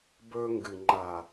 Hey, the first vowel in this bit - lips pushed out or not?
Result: yes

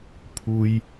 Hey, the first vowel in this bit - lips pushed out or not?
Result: yes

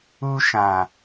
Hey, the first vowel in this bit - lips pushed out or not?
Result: yes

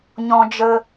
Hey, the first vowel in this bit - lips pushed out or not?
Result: yes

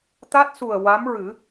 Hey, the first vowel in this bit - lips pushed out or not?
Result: no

